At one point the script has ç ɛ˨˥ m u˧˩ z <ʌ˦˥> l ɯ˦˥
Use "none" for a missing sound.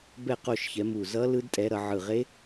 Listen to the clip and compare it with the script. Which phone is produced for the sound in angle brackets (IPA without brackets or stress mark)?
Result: ʌ˦˥